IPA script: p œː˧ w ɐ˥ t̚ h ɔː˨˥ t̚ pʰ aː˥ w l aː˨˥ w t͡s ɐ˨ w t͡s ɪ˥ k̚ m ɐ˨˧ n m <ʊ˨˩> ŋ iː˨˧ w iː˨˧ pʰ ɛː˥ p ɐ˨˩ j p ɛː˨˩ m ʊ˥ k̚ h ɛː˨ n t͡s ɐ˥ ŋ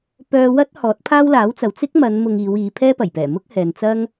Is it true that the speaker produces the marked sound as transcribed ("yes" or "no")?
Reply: no